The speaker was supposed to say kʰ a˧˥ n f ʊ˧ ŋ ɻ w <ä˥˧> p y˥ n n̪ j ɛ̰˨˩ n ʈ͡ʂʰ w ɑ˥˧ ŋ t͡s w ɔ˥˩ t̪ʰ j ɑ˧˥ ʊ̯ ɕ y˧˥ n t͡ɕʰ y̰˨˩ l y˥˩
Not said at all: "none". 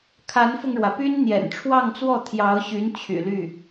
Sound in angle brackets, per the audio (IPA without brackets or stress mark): ä˩